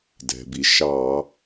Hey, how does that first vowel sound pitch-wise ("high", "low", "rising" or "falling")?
low